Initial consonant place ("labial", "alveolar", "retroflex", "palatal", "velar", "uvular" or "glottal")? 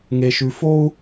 velar